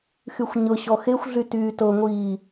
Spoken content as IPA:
x y xʷ ɲ ɤ ɕ ɔ x e xʷ ɮ y t yː t ɤ ŋʷ iː

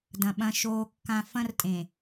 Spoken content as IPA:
d ɐ̃˨ ɓ ɐ̃˨ ʃ oː˨ kː ã˨ f ɐ̃˦ r tʼ ẽ˨

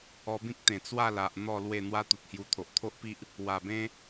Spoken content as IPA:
ɔ˧ b ĩ˦ k̚ t̪ ẽ˨˩ t͡s w a˥˧ l a˨ ʔ n̪ ɔ˥˧ l w e˥˧ n̪ w a˦ t̪ u˨ t̚ h j u˧ t̪ʰ o˨ ʔ t̪ʰ o˦ ʔ p i˦ ʔ | w a˨˩ b ẽ˦

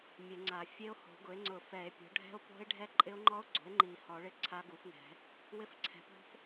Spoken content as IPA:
mʲ e˨˩˦ ŋ͡ǀ a˨˩˦ fʲ e˦˥ o̯ h o̤˨˩˦ ɡ ʊ˩˥ e̯ ŋ͡ǀ ʊ˨˩˦ f ɛ˨˩˦ e̯ pʲ o̤˩˥ ɖʱ ɛ̤˦˥ o̯ p o̤˦˥ e̯ ɖʱ ɛ˦˥ ǃʼ ɪ˦˥ o̯ ŋ͡ǃ ɔ˦˥ o̯ ɡ͡ǀ o̤˩˥ e̯ ŋ͡ǃ i˨˩˦ h ɔ˨˩˦ ɭ ɪ˦˥ ǀʰ a˦˥ ɡ u˩˥ f ŋ ɛ̤˨˩˦ | w ɪ˦˥ f ǀʰ ɛ̤˩˥ p ɔ̤˦˥ f

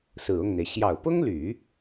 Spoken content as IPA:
s ɹ̩˨˩ ʊ˥˩ ŋ n̪ e˩ ɪ̯ ɕ j ɑ˨˩ ʊ̯ p ʊ˥ ŋ l y˨˩˦

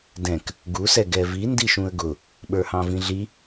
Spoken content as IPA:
d ɛ̃ k | ɡ u s ɛ ɡ ɛ v i n d i ʃ ũ ə̯ ɡ ʊ | ɓ ə˞ h ɑ̃ v ĩ ɮ i

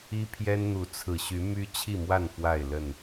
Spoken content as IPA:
i˦ pʰ j ɛ˦ n n̪ u˨˦ t͡sʰ ɹ̩˨˩ ɕ y˨˦ m y˦ t͡ɕʰ i˥˨ m w a˥˨ n f w a˥˨ ɪ̯ l ə˥˨ n

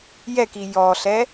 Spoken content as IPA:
j ɛ k i j ɔ ɬ ɛ

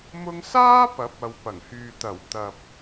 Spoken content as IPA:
m ʊ˧ ŋ s aː˥ p ɐ˨˥ p̚ ɐ˨ w p ɐ˨˩ ŋ h yː˨ t̪ ɐ˨˩ w t̪ ɐ˨ p̚

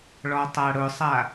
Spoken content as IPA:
ɭ ɔ tˤ a ɽ ʊ sˤ a

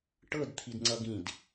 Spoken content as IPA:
ʈ ɤ d t̪ʰ i d ŋ͡ǀ ʌ ɡ ĩ d

